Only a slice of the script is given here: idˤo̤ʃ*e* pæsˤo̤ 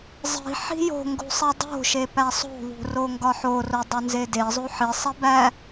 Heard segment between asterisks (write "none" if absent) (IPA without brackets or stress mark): e